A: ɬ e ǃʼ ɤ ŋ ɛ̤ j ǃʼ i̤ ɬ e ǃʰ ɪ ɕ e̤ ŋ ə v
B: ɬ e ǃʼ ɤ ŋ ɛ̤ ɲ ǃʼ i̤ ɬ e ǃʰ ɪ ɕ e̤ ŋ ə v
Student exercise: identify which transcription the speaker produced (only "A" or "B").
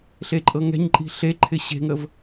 B